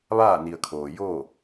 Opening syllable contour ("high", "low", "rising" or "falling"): falling